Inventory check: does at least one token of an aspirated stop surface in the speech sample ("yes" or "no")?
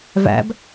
no